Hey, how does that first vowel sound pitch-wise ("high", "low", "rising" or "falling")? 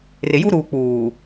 low